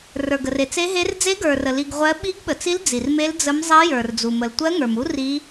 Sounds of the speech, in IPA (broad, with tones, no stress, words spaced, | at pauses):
rə˞˨ɡə˨r e˨t͡se˦˥ɦe˦˥r d͡ze˦˥ɡə˞˨rə˨ li˨ɡ ʁʷɜ˦˥ ɓi˦˥ɡɓə˨t͡si˦˥l d͡zi˨rme˦˥l d͡zə˦˥mzˤi˦˥ jə˞˨rd͡zu˨ mə˨l tʷɜ˦˥ŋə˞˨mu˦˥ ri˦˥